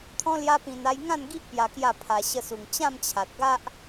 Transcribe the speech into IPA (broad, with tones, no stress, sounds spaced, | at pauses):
t̪ʰ ɔ̃˦ l j a˦ p ĩ˧ n a˧ j ŋ ã˥˧ n ɡ i˦ ʔ p j a˧ k j a˥˧ pʰ a˧ ɕ ə˧ s u˨˩ ŋ t͡ɕ ã˥˧ m t͡ɕʰ a˨ t̚ ɡ a˦ ʔ